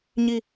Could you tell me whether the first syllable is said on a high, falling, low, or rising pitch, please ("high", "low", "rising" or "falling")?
falling